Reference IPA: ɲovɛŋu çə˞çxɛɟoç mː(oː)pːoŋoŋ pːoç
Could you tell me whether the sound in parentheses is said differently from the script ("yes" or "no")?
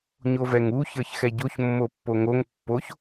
yes